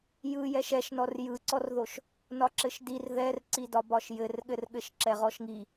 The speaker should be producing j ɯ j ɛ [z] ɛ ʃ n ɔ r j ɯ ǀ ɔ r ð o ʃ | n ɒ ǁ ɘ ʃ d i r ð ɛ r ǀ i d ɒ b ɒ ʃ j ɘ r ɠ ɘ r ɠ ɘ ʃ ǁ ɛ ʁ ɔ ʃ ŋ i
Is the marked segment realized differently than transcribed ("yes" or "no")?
yes